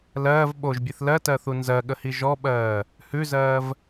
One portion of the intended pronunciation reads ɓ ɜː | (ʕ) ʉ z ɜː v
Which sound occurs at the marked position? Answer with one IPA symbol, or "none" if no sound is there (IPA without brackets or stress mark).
h